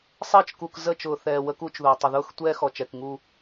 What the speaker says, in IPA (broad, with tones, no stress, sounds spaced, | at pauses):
sˤ ɘː˦ t͡ʃ k u˨ k z ə˦˨ t͡ʃ ʊː˨ θ ɛː˨ w ə˦ k u˦ t͡ʃ ð ʊː˨ tˤ ə˨ ð ʊː˦ x tʷ ɛː˦ x ɔ˨ t͡ʃ ɛ˨ k ŋ u˦˨